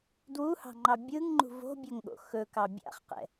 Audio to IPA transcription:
dwuhɑ̤ŋ͡ǃɑ bʲɯŋŋ͡ǃṳ vo̤bʲɵŋɠo̰ xɵkɑ bʲa̰χqɛ̰

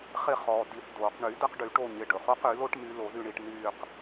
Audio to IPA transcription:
χɪ˦˨ χɔː˩ di˨˩˦θdoː˩qɳy˨˩˦ də˨˦qɖy˨˩˦ʈo˦˨ɲɪ˩˧˩ ɖɵ˩χo˥qy˨˩˦lo˥ʈ my˨˦lo˨˩˦ðy˦˨ɳi˦˨ʈ nyː˦˨q

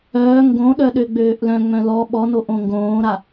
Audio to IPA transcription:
œː ŋɡõɗœ ɗøɡ͡bøːʔlœ̃ŋ͡mœ̃ lɔ ɓɔnoʔ õŋɡõːɾa

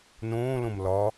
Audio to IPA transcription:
nõːlõm lɒ

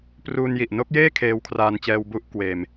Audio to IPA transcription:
pruː˧nji˨˩ʔ no˦˥k̚jeː˥˩ kʰeː˧wkʰraː˧nt͡ɕɛː˧w bu˥˩ʔkweː˧m

